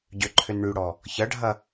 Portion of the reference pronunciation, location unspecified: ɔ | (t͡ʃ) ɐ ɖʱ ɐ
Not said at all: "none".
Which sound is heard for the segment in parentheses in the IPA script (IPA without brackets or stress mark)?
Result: ç